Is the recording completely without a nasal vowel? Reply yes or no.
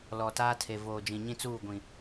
no